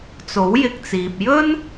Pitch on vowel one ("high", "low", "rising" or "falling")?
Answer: rising